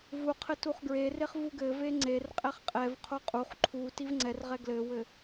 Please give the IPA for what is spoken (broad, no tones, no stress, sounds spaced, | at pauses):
v u qʰ ɘ t u χ ɡ ɹ e r e χ v u ɡ ɘ v e ŋ͡ǀ e r qʼ ɛ χ qʼ ɛ v qʰ o qʼ u χ ǃʰ u t i v ŋ͡ǀ ɛ r ʁ ɛ ɡ l ɘ w ɘ